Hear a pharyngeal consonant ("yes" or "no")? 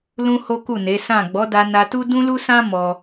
no